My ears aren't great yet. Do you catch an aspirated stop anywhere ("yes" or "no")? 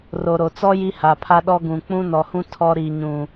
yes